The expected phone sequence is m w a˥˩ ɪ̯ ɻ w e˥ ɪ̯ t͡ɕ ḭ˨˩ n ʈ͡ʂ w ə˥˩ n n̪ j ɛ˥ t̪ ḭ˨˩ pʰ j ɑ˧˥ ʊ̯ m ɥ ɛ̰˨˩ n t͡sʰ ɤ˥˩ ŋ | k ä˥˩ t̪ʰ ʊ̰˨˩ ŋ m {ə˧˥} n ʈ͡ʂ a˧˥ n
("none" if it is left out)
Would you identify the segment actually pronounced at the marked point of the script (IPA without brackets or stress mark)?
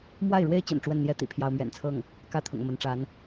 ə˧˥